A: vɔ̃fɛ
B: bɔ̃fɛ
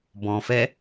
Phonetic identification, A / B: B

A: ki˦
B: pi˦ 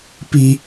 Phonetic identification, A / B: B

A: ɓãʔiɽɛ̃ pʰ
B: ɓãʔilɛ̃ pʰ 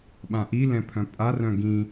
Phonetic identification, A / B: B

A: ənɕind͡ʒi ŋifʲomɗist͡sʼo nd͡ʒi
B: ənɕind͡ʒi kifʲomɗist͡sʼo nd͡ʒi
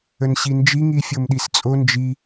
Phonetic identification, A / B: A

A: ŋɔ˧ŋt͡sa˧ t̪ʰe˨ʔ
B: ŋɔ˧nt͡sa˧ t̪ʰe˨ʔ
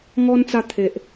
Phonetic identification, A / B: B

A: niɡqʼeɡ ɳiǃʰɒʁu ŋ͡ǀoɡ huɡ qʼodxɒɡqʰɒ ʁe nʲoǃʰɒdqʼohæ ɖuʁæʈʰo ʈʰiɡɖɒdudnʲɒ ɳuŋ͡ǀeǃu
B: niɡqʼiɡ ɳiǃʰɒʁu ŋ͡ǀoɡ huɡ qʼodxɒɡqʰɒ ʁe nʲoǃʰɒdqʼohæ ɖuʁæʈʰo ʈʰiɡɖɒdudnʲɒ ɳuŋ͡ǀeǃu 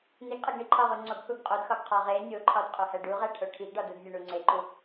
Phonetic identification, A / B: A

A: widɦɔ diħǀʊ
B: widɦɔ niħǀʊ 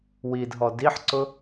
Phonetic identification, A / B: A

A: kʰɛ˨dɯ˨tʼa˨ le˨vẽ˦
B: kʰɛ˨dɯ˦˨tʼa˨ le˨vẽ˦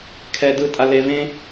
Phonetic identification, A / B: B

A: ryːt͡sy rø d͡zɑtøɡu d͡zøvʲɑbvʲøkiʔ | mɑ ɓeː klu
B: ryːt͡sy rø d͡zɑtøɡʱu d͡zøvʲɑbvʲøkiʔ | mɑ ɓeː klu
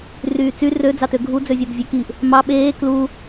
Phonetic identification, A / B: B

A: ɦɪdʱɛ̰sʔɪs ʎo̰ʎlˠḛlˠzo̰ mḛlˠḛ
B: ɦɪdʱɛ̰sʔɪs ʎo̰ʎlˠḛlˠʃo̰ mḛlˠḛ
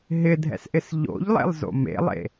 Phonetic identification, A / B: A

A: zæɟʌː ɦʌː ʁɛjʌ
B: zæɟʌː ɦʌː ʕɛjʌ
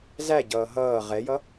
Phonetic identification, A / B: A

